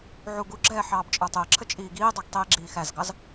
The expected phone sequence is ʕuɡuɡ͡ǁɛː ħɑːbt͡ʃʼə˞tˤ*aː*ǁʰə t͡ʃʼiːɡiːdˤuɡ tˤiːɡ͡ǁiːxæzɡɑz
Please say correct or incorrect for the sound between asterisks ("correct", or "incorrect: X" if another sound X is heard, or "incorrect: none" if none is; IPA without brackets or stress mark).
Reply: incorrect: əː